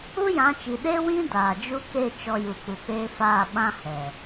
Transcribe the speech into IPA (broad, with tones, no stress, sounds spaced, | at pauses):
u˦ j ã˨˦ t͡ʃ i˨ ɗ e˦ w ĩ˦ d aː˨ d͡ʒ u˦ k e˦˨ t͡ʃ ɔ˧ j u˨ k͡p u˨ k͡p eː˦ f aː˦˨ ɓ ã˧ h ɛ˨